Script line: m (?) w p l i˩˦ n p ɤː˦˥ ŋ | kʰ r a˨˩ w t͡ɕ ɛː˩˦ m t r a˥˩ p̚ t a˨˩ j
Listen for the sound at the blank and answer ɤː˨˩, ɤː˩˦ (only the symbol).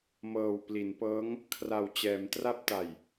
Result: ɤː˨˩